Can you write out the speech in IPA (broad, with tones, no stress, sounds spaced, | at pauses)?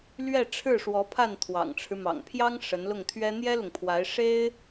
l ɥ ɛ˥˧ ʈ͡ʂʰ ɻ̩˥˩ ʂ w ɔ˧˥ pʰ a˥˩ n t̪ʰ w ɑ̰˨˩ ŋ ʈ͡ʂʰ ɻ̩˦ m ɑ̰˨˩ ŋ pʰ j ɑ˥ ŋ ʂ ə˧˥ n l ʊ˥˩ ŋ t̪ʰ ɥ ɛ˥ n̪ j ɛ˥ l ʊ˨ ŋ pʰ w a˧˥ ɪ̯ ʂ e˥ ɪ̯